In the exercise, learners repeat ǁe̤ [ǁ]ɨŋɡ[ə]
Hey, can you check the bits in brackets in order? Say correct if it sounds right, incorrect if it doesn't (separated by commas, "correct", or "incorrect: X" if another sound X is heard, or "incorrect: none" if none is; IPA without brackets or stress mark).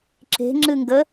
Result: incorrect: ŋ͡ǁ, correct